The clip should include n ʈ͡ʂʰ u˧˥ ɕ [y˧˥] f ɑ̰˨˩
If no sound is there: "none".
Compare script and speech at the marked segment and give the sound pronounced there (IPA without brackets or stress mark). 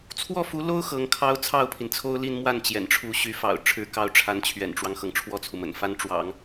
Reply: y˧˥